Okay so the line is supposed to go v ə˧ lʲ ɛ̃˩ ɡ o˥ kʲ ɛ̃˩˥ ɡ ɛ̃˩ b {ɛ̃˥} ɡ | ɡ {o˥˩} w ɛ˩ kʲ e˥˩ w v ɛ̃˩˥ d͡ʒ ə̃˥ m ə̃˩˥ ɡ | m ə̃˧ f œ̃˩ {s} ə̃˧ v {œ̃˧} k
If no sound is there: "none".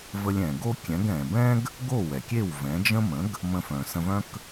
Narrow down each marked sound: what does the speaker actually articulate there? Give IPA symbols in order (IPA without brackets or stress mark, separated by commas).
ɛ̃˥, o˥˩, s, œ̃˥